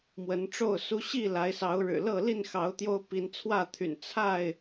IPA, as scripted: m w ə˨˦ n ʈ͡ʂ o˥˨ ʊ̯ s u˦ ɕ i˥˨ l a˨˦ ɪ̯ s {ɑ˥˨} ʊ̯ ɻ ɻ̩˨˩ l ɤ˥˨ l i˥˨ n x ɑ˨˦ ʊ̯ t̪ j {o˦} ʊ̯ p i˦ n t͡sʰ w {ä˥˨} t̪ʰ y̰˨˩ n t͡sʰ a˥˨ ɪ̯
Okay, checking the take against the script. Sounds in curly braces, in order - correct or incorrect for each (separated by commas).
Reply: incorrect, correct, correct